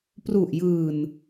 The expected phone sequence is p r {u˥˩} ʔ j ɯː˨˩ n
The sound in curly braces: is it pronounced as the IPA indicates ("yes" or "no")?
no